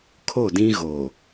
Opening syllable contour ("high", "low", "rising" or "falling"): falling